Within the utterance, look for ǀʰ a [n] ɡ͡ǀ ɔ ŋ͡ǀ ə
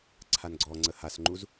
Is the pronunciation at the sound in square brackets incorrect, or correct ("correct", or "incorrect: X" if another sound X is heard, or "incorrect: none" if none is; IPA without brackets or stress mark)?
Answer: correct